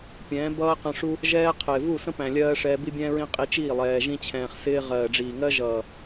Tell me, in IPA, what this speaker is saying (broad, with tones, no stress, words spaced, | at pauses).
pʲɛ̃ː˨˦bʌː˦qə̃˧ʂu˦ | ʒɛː˦ qʰɪː˨vu˦˨ sə̃˦pæ̃˨lʲɜː˧ ʂɛː˧bi˦bʲɛ̃ː˦ɹĩ˦ qʼi˧t͡ʃiː˦˨ lˠɛː˨ʒĩ˧t͡ɕʰɛ̃ː˨χsɪː˧ ʁɜː˨ɖ͡ʐiː˨ŋɜ˦ ʒʌː˨